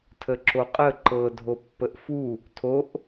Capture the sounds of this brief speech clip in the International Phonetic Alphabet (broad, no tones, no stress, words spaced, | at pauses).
tʰəǁoqʼə ǃɤ dʱopːəʔfu | tʰoʔ